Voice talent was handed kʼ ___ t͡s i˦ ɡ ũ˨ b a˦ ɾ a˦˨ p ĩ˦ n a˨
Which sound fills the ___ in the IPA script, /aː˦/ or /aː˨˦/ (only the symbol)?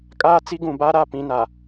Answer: aː˦